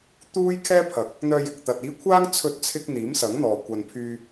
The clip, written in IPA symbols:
t̪uː˥jkʰɛː˥pʰɐ˨˥k̚ | n̪œː˧jɪ˨k̚t̪ɐ˨t̚ iː˨˧ kʷʰaː˥ŋ t͡sʰɵ˧t̚t͡sʰɪ˧k̚ n̪iː˨˥msɐ˨˥ŋn̪ɔː˨ kʷɐ˨npʰyː˧

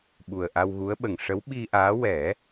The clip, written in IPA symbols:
ɓu˨˩ə̯ʔa˧wɣu˧˥ə̯ɓə˨˩ŋ ʂə˧˥wɓi˧ʔaː˧˥ wɛ˨˩˦

